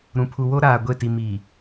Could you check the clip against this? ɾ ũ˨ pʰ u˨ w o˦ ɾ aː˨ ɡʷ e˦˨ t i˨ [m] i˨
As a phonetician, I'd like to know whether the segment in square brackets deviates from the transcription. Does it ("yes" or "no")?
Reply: no